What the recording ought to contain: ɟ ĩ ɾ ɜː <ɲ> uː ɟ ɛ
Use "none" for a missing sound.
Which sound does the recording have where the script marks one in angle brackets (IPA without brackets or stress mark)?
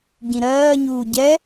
ɲ